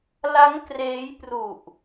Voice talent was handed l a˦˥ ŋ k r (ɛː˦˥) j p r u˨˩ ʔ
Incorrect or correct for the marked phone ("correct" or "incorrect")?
incorrect